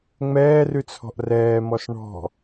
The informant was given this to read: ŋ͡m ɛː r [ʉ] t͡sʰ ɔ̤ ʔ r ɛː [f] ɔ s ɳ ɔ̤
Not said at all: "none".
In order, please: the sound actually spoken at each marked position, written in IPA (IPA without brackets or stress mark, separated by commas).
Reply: ʉ, m